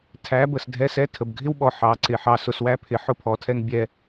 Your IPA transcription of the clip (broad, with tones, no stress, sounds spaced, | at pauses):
tʰ æ˨˦ b ə˨ s dʱ ɛ˧ s ɛ˧ tʰ ə˨ b ɡʱ ɪ˦ w ɓ ɔ˨ ħ ɑ˨˦ ǀ ɪ˨ ħ ɑ˧ s ʊ˧ s w æ˦ pʰ ɪ˨˦ ħ ʊ˦ pʰ ɔ˨˦ tʰ ɛ˦ ŋ bʲ ɛ˧